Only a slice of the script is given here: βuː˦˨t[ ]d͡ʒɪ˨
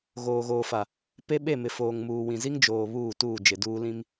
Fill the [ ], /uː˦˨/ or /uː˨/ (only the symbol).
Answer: uː˦˨